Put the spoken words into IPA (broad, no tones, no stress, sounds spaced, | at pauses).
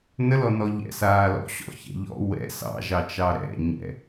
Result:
n ə l ɔ n ɔ ʎ ɛ̰ s aː l ɔ̰ ɕ ɔ̰ ç ɛ̰ ʎ ɔ̰ w ɛ̰ s ɑ̰ ʒ ɑ t͡ʃ ɑ ɾ ɛ̰ ɲ ɛ̰